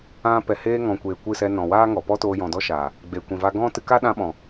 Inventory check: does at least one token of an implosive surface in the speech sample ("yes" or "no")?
yes